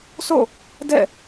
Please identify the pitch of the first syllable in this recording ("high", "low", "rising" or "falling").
falling